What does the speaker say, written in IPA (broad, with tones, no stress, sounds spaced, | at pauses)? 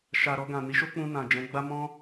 ʃ a˨ ɾ ɔ˧ ɡ ã˨ n i˨˦ ʃ o˦ k͡p ũ˧ n ã˨ d͡ʒ ɛ̃˨˦ ɡ͡b a˦ m ɔ̃˦